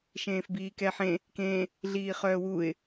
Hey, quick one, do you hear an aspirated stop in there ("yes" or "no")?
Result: no